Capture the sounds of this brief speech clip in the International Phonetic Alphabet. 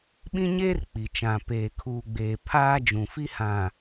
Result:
ɓ ĩ˦ ɲ eː˦ r k͡p i˨ t͡ʃ ã˨ p eː˨ kʰ uː˨ ɡ͡b eː˨ pʰ aː˦ d͡ʒ ũ˨ f i˦ h ã˨

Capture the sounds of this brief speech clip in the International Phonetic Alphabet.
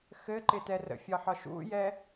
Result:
x ɘ ǃ ɪ t ɛ r ə̰ fʲ ɒ ħ ɒ ʃ ṵ j ɛ

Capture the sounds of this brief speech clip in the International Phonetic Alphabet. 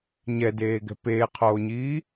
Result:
ɲ ɛ d eː ɡ ɛ̤ p eː qʰ oː ɲ iː

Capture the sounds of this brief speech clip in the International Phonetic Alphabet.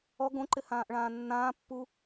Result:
ɔ ɡ õ ǃ ɪ h ãː ʔ ɭ ãː nː ãː pː u

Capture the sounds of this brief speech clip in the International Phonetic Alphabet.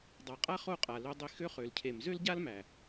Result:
dˤ a˨ qʼ a˦ χ o˦˨ qʼ a˨ l ø˧ dˤ i˧ x ø˦ χ ø˨ l cʰ e˨ m z ø˦ l ɟ a˦ l m æ˨

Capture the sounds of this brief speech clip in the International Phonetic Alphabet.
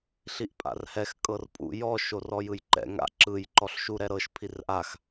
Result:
ɬ i ʔ pʼ a̰ r h ɛ x kʼ ɤ r pʼ ṵ j ɔ ʃ o r ɔ j ɯ j ǃ ɛ̰ ŋ a̰ ǁ ɯ j ǃ ɔ ɬ ʃ u ɾ ɛ ɾ ɤ ʃ pʰ i r ʔ a x

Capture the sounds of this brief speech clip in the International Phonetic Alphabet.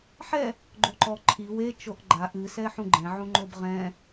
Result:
ħ ɛ | ɡ͡ǃ o ǃ ɔ ǃʰ i w e t͡ʃ o ʔ ɡ͡ǃ a ʔ ɨ s ɛ ħ ũ ɡ͡ǃ ɛ̃ ʕ ũ ŋ͡ǃ o b ʁ ɛ̃

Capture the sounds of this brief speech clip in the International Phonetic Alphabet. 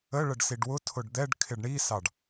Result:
ə ɭ ə ɖ s i ɖ w ʊ tʰ ʊ ɖ d̪ ɛ ɖ kʰ ɪ ɖ ɳ i s ɑ ɖ

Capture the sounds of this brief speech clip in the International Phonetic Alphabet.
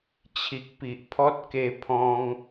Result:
t͡ɕʰ i˨ k̚ p i˨ ʔ pʰ ɔ˦ t̚ k e˧ pʰ ɔ̃˧ ŋ

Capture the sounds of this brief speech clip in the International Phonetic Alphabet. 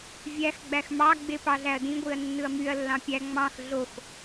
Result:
vʲ æ x ɡ͡b æ x m ɑ ɡ͡b e p ɑ ɮ æ ɐ̯ d ĩ ɡʷ i ɐ̯ nː ɯ ɐ̯ m y ɐ̯ lː ɑ̃ pʲ æ ŋ͡m ɑ̃ x ɮ o x

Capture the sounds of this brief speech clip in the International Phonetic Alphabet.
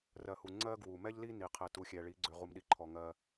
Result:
r ɜ˨ h u˨ ŋ͡ǀ ɜ˦ ɡ w u˨ m ɛ˦ ʎ l i˦ n i˨ qʰ ɛ˨ t u˨ xʲ ɛ˨ ɭ i˨˦ ɡ͡ǀ ʏ˨ ʁ u˨ m ɗ i˨ ǃʰ ɔ˨ ŋ ɜ˦

